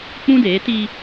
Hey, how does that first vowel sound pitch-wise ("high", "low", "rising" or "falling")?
high